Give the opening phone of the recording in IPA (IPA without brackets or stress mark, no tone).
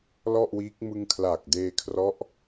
l